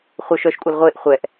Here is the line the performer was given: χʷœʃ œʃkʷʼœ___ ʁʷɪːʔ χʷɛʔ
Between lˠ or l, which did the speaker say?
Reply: l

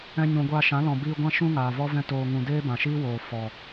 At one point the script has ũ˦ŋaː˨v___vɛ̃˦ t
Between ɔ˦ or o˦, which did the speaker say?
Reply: ɔ˦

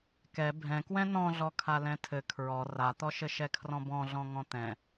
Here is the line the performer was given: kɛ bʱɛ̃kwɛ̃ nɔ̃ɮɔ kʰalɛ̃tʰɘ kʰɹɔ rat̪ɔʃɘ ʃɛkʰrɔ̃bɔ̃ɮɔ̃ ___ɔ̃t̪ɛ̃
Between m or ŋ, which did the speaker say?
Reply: ŋ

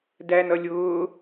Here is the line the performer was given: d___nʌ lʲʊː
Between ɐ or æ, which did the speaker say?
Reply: æ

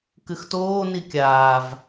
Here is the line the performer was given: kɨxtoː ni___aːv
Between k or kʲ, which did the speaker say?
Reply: kʲ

